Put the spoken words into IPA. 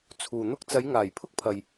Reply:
t͡sʰ uː˨ n̪ ʊ˥ k̚ t͡s ɐ˨˧ j ŋ aː˨˩ j pʰ ʊ˥ k̚ pʰ ɐ˨ j

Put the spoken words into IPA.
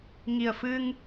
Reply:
ŋ i˨˩ ə̯ f ɨ˧ ŋ

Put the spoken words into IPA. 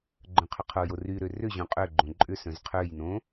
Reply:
ɡ͡ǃ œ̃ qʰ ʏ qʰ o j o r y ɾ ø r ʏ ʑ õ qʼ ø ɡ͡ǃ õ ǃʼ ʏ s œ̃ z qʰ ø j n õ

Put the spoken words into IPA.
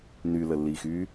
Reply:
n y l ə lː i x y

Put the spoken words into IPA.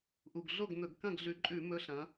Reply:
ʔ u˨˩ ɡ ɮ o˥˩ ɡ n̪ ɵ˧˩˧ ɡ k ɐ̃˥˩ ɡ ɮ ʉ˨˦ ǃʼ ʉ˧˩˧ m ɵ˨˦ ɬ ɐ̃˨˦

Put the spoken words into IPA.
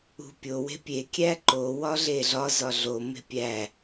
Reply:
ṳ pʲ o w e̤ pʲ e kʲ æ ǃ o w ɒ ɮ e ɮ ɒ z ɒ ɮ o m e̤ pʲ æ

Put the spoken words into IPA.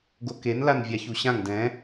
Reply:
ɡ o k e n l a n vʲ a ç u ɕ ã ŋ d ɛ̃

